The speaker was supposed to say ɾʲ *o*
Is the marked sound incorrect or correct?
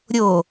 correct